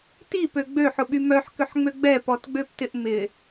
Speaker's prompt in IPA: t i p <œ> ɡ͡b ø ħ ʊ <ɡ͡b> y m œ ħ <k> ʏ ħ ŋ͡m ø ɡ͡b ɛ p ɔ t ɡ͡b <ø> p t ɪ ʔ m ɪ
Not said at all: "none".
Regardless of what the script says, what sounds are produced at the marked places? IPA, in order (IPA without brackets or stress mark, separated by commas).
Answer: ø, ɓ, k, ø